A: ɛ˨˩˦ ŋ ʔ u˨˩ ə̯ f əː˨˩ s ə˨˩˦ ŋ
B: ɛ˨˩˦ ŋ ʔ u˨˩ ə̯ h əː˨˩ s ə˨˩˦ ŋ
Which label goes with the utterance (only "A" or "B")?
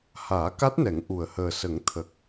B